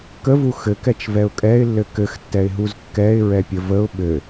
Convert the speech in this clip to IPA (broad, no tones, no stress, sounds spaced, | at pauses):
k ə v u x ɘ k ɛ t͡ʃ v ɛ ʊ̯ kʼ ɛ ɪ̯ lː ɘ k ɘ x tː ɛ ɪ̯ ɦ u z kː ɛ ɪ̯ ɹ ɛ pʲ ə v ə ʊ̯ ɓ ɘ